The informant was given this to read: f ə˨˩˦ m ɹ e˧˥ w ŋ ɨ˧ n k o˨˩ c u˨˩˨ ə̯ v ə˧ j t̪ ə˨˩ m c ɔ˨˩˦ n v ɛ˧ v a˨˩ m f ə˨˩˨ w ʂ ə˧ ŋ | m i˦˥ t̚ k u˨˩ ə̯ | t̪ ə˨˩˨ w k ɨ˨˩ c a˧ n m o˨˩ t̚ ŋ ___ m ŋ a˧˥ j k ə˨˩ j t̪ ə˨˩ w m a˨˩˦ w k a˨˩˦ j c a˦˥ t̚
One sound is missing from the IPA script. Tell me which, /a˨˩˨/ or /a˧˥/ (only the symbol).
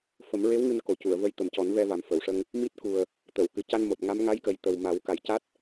a˧˥